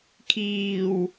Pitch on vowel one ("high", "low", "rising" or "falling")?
low